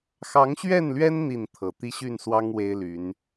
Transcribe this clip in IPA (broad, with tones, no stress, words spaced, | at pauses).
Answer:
xɑ˨˦ŋɕɥɛ˥˨nlɥɛ˦n n̪i˥˨nt̪ʰɤ˨˩ t̪i˦ɕy˥˨nswɑ˦ŋ we˦ɪ̯ly˨˦n